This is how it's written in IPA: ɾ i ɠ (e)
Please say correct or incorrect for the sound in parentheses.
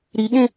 incorrect